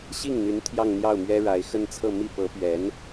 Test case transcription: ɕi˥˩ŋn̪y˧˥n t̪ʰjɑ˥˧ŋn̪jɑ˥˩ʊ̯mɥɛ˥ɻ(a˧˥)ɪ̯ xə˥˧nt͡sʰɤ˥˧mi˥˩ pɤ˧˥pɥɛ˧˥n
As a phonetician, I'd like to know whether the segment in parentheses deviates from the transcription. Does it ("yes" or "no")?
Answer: no